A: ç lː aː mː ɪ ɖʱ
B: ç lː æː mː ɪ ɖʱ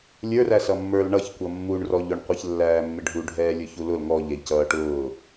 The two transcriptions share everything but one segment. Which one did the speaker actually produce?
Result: B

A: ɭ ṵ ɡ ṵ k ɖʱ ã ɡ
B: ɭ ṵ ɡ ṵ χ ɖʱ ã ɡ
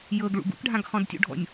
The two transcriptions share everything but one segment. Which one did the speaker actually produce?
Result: A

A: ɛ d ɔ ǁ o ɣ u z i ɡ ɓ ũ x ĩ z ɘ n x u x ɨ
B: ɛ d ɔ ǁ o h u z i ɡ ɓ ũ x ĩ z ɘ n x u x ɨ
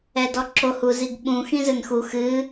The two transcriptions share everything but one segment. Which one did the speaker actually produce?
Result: B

